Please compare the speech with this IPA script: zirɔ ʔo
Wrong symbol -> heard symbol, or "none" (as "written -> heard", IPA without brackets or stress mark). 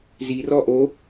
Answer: none